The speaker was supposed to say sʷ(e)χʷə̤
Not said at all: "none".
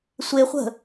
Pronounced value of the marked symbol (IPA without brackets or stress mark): e